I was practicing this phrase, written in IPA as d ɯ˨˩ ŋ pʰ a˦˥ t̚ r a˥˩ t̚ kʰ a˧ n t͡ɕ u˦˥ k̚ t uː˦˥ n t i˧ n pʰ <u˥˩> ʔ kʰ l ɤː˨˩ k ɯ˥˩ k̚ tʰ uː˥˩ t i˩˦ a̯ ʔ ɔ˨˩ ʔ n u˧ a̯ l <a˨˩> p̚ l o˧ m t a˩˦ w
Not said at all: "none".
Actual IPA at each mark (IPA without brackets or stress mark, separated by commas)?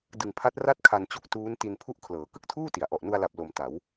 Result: u˥˩, a˨˩